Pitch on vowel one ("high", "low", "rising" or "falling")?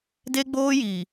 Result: high